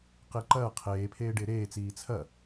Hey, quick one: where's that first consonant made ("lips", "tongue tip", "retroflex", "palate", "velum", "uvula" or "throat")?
uvula